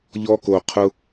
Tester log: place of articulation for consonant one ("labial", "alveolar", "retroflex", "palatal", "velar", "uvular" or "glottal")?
palatal